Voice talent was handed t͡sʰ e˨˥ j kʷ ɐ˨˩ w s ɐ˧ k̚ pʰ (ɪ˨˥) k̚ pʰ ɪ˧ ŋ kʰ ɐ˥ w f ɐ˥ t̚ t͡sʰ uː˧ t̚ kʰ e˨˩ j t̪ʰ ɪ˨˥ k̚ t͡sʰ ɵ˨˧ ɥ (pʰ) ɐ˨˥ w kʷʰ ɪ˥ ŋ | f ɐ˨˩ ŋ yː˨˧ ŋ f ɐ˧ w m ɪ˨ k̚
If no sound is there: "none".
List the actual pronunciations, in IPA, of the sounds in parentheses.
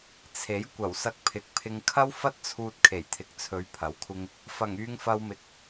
ɪ˨˥, pʰ

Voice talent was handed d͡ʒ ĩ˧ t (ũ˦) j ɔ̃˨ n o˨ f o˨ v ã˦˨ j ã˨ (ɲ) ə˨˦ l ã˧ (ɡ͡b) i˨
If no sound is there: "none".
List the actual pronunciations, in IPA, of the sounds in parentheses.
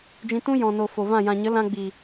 ũ˦, ɲ, ɡ͡b

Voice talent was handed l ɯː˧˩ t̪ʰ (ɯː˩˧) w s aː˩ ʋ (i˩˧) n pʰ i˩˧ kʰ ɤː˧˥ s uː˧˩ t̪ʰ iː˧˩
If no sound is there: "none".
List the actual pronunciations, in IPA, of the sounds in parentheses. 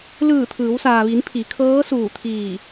ɯː˩˧, i˩˧

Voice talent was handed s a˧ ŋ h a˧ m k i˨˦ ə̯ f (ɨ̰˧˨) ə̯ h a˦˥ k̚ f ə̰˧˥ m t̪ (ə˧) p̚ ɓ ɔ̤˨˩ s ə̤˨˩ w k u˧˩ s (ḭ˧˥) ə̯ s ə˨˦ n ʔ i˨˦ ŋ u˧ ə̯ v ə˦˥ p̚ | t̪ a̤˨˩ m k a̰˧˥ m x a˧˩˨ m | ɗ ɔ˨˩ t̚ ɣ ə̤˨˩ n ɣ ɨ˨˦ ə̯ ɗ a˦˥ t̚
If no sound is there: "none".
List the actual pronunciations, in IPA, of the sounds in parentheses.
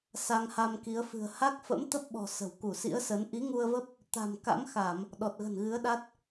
ɨ̤˨˩, ə˦˥, ḭ˧˥

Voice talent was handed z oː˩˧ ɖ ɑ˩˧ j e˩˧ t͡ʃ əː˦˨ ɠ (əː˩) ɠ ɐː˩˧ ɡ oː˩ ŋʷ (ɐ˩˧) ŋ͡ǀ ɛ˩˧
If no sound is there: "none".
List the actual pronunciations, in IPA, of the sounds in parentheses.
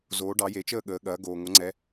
əː˩˧, ɐ˩˧

